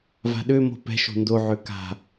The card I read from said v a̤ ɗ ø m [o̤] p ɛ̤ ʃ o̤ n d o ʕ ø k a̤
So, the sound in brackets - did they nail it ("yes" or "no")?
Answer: yes